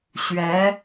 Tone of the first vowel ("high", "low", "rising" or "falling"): rising